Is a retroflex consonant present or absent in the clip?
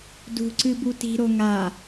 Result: absent